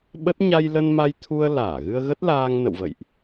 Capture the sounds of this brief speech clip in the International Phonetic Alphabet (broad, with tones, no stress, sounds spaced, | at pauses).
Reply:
ɓ ə˦˥ t̚ ɲ a˧ j l ə˧ n m a˧ j t̪ʰ u˧ ə̯ l aː˧˩ ɣ ɨ˧ ə̯ ɣ ə˦˥ t̚ l aː˧ ŋ n ə̰˧˨ w v ə̰˧˨ j ʔ